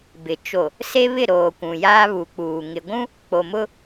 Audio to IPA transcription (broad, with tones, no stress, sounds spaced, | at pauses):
b ɪ˨ t͡ʃ o˨ | s e˦ β ɪ˦˨ ɾ oː˨ kʷ ũ˨ j aː˦ β u˨˦ k͡p uː˨ ŋ ɪ˨ ɡʷ ũ˦ | k͡p o˨ m ʊ˦